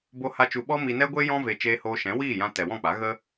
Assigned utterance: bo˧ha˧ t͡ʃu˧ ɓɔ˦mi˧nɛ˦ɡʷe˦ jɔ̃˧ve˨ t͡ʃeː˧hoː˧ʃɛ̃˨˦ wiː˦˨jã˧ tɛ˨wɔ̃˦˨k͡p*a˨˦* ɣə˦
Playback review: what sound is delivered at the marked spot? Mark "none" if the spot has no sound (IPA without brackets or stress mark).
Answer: a˨˦